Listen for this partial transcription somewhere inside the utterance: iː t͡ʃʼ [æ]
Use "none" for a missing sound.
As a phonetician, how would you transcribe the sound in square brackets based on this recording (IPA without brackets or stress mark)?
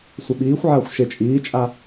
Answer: a